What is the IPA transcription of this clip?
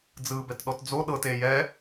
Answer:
d͡zɯːbɛtɗɔtd͡zo ɗɤte jɛ

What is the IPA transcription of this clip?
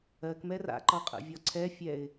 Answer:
ɜk mɛra̰ ǃɒqʼə̰vʲɒǀʰɛ fʲɛɪ̯

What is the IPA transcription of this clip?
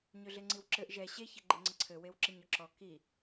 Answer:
ɲøɮeŋ͡ǀiwǁɘʔ ʒɛ ɕeç eɡ͡ǃeŋ͡ǀəǀʰɘ wewǁeɲɔǁɔ ki

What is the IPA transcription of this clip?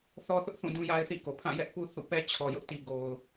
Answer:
θɔ˦θʊ˦ʔθũ˦˨ dũ˦ja˦ɪ̯θḭ˦˨ko˨ pʰã˦˨jɛ˦ʔ pu˦θṵ˦˨pɛ˦ t͡ɕʰɔ˨jʊ˦ʔti˨ ɡo˨ʊ̯

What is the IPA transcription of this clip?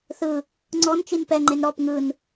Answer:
θɯ | ŋ͡ǀɔnt͡ʃin pɛŋ͡ǃen ɾɔp ŋɯn

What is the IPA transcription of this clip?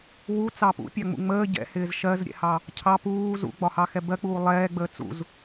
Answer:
wu t͡sɑpṵpʲɑŋ͡mṵ ŋ͡məː ɟɛ̰hɪːz ʃɜzɾʲɛ̰hɑ | cʰɑ puː zṵɡ͡bɒ hɑxɛbɜk͡puː lˠɛːɡ͡bəː t͡sṵz

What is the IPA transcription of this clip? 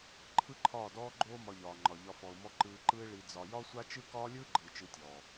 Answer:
ǃʰɯ˦ǃʰɒː˦˨dɔː˦ɡ͡ǃoː˦ mɒ˧ʎɒː˨ŋ͡ǃɒ˨ʎɒ˧ fɔ˨ʊ̯mɔ˧ ǃɯː˧ǃɯ˦ɪ̯ ɭi˧d͡zɒ˧ jɒ˦sʷa˦t͡ʃɯ˦ kɒː˦lʲɯː˦ɡ͡ǃɯː˨ t͡ʃɯ˧tʲɔː˨

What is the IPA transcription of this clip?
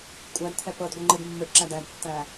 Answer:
kʷʼædt̪ʰɛ pɤdɡʷɯ ŋ͡ǃɯdmːɯʈǁæd ædtːæ

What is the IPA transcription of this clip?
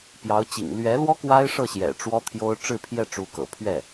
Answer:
pjɑ˧˥ʊ̯t͡ɕḭ˨˩ŋ lɥɛ˧˥lwɔ˥ kwa˥ɪ̯ʂɤ˥˩ɕjɛ̰˨˩ ʈ͡ʂwɔ˥t̪ʰjo˥ʊ̯ ʈ͡ʂɻ̩˥˧pʰjɛ˥˩ ʈ͡ʂu˧˥kɤ̰˨˩pʰɥɛ˥˩

